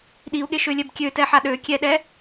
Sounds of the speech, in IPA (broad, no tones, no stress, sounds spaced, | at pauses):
ɗ i u̯ ɠ e ʃ ø lʲ ɛ b kʲ ø t ɛ ħ a ɗ ø kʲ ɛ ɗ ɛ